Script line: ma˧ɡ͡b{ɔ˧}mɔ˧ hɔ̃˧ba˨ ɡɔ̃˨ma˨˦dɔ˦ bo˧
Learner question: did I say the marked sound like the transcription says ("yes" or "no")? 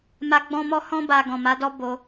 no